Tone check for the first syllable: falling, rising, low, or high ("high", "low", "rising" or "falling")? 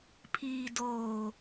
low